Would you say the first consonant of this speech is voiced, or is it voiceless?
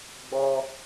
voiced